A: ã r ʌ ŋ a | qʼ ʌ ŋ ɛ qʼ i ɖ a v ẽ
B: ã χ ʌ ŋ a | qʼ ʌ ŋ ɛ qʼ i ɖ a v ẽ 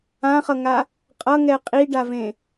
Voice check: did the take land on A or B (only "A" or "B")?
B